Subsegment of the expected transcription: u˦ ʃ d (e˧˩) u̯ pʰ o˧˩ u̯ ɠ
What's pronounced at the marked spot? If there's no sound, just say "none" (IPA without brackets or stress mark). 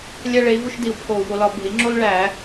i˧˩